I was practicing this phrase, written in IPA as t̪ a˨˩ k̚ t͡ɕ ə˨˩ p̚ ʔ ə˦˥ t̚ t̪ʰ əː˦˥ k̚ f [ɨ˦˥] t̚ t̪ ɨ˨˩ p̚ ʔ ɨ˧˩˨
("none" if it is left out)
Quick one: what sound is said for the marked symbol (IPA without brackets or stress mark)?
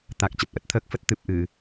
ə˦˥